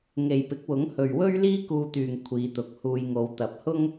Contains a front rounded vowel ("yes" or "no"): yes